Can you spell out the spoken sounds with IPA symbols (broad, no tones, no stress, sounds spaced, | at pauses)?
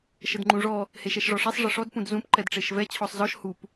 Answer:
ʃ ə d ŋ͡ǃ ũ ʐ ɔ | h e ʃ ɛ ʃ ʐ ɔ ʂ ɛ sˤ ʐ ə ʂ ɔ d p ũ d z ũ p ǃ ɛ d ʈ͡ʂ e ʃ v ɛ t͡ɕʰ ɔ sˤ z ɔ ʃ h u p